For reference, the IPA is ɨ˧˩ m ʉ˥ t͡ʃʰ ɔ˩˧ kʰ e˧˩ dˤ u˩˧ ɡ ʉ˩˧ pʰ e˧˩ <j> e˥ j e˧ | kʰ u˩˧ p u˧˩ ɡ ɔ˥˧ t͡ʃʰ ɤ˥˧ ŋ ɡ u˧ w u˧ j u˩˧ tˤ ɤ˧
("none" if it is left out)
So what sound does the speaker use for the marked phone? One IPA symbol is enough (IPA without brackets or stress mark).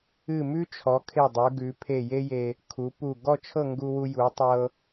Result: j